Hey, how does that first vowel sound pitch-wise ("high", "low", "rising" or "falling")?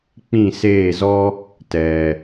falling